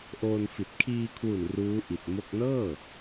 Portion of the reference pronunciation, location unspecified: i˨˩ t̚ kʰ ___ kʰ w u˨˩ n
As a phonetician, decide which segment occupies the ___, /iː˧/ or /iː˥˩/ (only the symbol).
iː˧